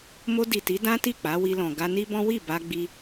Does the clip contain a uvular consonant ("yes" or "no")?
no